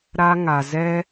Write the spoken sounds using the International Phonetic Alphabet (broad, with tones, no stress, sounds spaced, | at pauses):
ɾ a˦ ŋ a˧ z ɛ˦